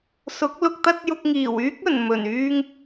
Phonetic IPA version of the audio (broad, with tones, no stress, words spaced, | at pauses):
sʊ˨˥k̚lʊ˧k̚t̪ɐ˥t̚ jʊ˧k̚ŋiː˨˩w yː˥k̚ ɵ˨˩nmɵ˨˩nyː˥ŋ